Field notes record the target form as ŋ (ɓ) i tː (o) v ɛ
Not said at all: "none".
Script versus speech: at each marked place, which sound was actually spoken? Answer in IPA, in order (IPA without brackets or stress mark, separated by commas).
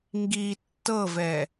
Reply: ɡ, ɤ